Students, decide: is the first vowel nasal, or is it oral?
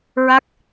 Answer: oral